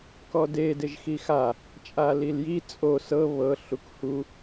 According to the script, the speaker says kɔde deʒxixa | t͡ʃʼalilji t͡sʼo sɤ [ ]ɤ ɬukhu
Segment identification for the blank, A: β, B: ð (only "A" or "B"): A